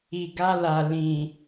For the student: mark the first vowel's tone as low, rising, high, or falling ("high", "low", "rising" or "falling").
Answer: low